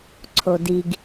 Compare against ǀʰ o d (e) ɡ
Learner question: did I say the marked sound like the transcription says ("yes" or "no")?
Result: no